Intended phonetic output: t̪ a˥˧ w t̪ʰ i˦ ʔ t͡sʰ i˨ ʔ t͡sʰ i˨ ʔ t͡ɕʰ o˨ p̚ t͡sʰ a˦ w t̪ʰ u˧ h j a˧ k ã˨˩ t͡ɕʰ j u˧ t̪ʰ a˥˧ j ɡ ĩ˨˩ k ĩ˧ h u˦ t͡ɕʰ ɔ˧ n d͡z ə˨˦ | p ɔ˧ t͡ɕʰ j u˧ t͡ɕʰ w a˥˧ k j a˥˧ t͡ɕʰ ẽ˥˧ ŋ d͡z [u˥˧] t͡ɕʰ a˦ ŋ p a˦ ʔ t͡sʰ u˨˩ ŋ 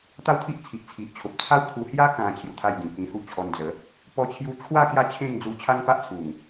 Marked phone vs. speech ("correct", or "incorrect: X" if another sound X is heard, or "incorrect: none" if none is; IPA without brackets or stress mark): incorrect: u˧